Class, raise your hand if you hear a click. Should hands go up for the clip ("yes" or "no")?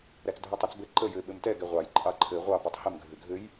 yes